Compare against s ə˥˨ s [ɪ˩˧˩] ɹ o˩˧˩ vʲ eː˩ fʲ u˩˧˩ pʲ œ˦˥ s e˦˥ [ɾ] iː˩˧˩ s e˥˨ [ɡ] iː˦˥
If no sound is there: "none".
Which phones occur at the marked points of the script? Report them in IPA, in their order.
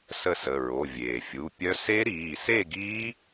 ə˩˧˩, ɾ, ɡ

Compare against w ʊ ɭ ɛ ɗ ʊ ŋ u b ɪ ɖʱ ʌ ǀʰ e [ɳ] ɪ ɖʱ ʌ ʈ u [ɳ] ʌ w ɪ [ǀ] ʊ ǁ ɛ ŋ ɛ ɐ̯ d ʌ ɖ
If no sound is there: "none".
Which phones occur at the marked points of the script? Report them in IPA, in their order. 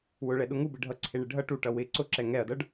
ɳ, ʈ, ǀ

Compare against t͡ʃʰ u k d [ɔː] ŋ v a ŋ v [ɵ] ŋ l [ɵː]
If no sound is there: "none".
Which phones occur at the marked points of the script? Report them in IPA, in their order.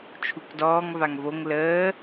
ɔː, o, əː

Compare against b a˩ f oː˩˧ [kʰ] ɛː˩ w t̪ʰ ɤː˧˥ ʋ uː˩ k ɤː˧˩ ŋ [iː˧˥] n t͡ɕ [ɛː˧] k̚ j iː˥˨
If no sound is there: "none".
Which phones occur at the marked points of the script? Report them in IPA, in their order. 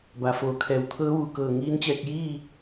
kʰ, iː˧˥, ɛː˧

